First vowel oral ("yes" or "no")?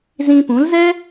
no